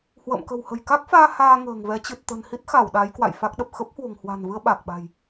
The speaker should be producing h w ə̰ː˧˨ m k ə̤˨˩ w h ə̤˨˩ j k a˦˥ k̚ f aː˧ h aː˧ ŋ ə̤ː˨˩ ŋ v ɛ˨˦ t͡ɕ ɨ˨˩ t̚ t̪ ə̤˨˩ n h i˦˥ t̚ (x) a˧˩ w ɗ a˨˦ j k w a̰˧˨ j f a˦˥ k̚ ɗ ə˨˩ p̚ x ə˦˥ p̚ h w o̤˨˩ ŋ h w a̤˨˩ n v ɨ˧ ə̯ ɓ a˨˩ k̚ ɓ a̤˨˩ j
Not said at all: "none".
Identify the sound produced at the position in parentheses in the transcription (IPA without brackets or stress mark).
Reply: x